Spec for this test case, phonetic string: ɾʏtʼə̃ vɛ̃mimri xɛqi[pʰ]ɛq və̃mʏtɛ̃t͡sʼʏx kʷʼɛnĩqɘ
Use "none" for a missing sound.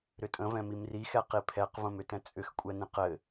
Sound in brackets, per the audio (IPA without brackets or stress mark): pʰ